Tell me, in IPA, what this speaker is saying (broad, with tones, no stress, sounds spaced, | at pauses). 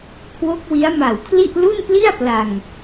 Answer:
kʰ w o˦˥ k̚ w i˦˥ a̯ m a˨˩ w kʰ l i˥˩ ʔ l u˥˩ n p l i˥˩ a̯ p l a˧ ŋ